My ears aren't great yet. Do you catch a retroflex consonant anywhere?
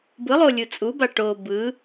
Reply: yes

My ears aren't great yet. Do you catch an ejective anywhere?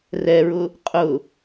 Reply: yes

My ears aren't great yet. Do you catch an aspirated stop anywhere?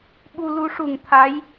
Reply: yes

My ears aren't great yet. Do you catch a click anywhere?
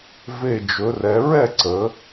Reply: yes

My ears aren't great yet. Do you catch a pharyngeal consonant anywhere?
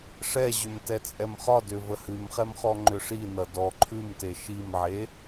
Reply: yes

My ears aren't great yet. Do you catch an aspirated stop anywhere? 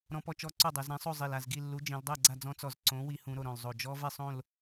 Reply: no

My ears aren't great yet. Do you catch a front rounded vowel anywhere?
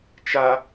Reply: no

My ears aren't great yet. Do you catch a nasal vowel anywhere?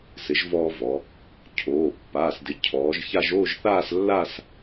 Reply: no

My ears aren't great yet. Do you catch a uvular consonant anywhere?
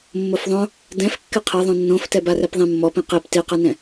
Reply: yes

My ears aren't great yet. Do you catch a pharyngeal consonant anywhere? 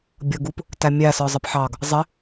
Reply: yes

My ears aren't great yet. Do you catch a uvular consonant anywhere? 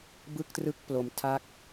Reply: no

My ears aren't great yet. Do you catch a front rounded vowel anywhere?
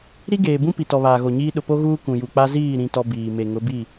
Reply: no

